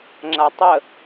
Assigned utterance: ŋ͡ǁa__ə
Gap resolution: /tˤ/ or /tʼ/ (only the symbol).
tˤ